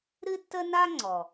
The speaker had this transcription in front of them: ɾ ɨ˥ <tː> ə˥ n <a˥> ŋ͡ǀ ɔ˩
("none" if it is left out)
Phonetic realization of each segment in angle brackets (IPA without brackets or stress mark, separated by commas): tː, a˥